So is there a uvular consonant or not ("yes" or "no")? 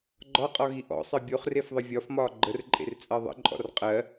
yes